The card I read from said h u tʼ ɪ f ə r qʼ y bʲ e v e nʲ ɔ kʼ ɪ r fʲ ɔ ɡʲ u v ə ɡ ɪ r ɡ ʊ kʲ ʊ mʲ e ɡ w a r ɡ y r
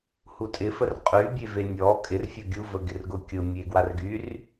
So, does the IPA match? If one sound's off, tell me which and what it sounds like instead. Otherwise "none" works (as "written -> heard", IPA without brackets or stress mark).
none